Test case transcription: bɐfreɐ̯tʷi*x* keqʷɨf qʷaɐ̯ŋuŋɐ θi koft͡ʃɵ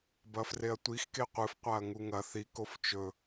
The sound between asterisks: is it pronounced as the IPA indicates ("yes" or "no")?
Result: yes